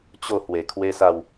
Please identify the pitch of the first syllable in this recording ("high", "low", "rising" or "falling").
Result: falling